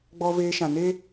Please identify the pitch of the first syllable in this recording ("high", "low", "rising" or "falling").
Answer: high